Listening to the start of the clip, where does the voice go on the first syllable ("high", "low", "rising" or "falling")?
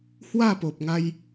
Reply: falling